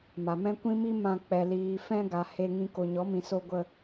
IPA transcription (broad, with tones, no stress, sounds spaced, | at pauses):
m a˨ m ɛ̃˦ kʷ ĩ˦ m i˦ m ã˧ k͡p ɛ˨ l iː˨ f ɛ̃˧ ɡ a˨ h e˧ ŋ ĩ˧ k o˨ ɲ ɔ˨˦ m ĩ˨ s o˧ ɡʷ ə˧